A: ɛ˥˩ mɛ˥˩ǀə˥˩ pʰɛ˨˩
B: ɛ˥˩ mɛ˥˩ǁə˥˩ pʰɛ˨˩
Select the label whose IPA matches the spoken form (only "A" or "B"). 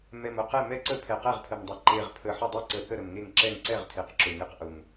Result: A